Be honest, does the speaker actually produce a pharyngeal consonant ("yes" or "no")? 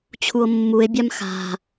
no